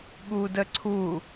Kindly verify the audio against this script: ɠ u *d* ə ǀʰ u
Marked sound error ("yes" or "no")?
no